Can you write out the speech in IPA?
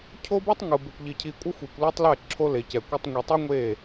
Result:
cʰ o˦ b ɯ˦ tˤ ŋ ɯ˨ b e˨ kʷ ʎ i˨ cʰ i˨ kʷʼ ʌ˦ xʷ i˨ kʷ l o˦ tˤ l ɛ˦˨ ǁʰ o˦ l e˨ c ɛ˨ kʷ ʌ˦ tˤ ŋʷ i˨ tˤ u˦ ŋʷ e˦˨

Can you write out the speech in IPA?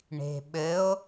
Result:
ɳ e̤ ɓ ɘ o̯

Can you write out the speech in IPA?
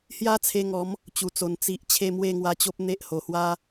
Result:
h j a˦ t͡sʰ e˧ ŋ ɔ˨˦ m | t͡ɕ u˨˩ t͡s o˨˩ n t͡s i˨ ʔ t͡ɕʰ e˥˧ m w e˥˧ ŋ w a˧ t͡ɕ o˦ p̚ n̪ e˦ ʔ h o˨˩ h w a˦

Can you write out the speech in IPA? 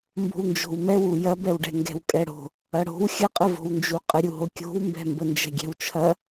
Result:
m b o̤ w n d͡ʒ o̤ w m ɛ w u j ɐ b ɛ w ɖ ɛ̤ ŋ ɡ ɛ̤ w kʼ ɛ ɽ o̤ | ɐ ɽ o̤ w xʲ ə qʼ ə v o̤ w n d͡ʒ u qʼ ə ɾʲ u ɦ o kʲ o̤ w m b ɛ̤ m b ə n d͡ʒ ɛ̤ ɡʲ ɛ̤ w t͡ʃʰ ɐ

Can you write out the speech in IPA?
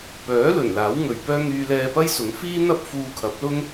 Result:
p œː˨˥ l ɵ˨˩ n l aː˨˥ w ŋ ɵ˨ ɥ p œː˥ ŋ yː˧ l ɛː˧ p ɐ˥ j s ʊ˨˥ ŋ f iː˥ n̪ ɐ˥ p̚ f uː˧ kʰ ɐ˨˥ p̚ l ʊ˥ ŋ

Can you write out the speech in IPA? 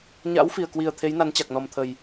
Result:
ɲ a̰˧˥ w f i˨˩ ə̯ k w i˨˩ ə̯ t̪ʰ e˨˦ j n a˨˦ n t͡ɕ a˨˩ k̚ n ɔ˨˩ m t̪ʰ ə˨˩ j

